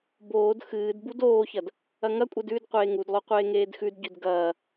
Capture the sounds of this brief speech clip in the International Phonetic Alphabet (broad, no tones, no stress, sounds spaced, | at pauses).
b oː d x ɨː d b u d oː ç ɐ d | ɐ ŋ ɐ kʷʼ e d ʉ d qʷ eː ŋ u d lˠ o qʷ eː ŋ eː d x ʉ d ɟ ʉ d ɡ ɐː